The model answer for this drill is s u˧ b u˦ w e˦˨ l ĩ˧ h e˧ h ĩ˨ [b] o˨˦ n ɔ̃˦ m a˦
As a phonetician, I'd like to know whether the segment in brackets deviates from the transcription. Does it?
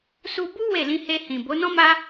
no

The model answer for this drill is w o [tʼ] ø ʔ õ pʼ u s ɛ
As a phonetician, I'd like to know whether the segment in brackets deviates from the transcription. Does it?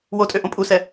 no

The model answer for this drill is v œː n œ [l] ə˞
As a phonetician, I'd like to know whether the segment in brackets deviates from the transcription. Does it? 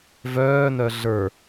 yes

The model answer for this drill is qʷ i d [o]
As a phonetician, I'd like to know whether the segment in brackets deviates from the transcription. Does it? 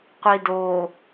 no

